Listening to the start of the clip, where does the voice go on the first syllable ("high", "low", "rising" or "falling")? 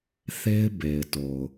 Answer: high